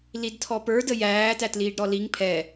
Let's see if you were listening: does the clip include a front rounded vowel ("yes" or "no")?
no